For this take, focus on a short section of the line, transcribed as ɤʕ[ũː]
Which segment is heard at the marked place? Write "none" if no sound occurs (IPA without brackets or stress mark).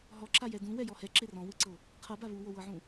ũ